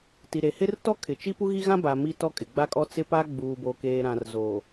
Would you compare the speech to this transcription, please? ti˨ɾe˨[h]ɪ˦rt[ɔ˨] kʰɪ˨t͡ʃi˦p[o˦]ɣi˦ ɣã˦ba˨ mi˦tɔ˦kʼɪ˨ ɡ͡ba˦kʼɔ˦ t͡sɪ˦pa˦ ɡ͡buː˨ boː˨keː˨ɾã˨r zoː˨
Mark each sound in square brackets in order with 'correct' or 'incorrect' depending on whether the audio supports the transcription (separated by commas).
correct, incorrect, incorrect